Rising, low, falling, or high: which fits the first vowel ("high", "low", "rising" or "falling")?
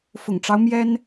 low